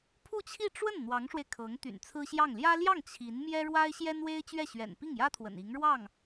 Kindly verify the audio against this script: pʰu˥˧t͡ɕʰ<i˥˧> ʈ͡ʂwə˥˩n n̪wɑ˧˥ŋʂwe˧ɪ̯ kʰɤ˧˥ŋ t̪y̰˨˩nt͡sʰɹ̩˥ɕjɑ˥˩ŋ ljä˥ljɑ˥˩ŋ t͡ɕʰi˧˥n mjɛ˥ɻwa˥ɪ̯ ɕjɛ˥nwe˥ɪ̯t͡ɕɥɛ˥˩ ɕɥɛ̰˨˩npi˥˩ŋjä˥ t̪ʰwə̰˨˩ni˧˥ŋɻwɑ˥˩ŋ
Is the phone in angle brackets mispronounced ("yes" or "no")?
no